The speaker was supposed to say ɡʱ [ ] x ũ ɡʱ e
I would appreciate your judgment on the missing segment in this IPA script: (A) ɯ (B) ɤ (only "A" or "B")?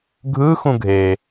A